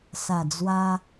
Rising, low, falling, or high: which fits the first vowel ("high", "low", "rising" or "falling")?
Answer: low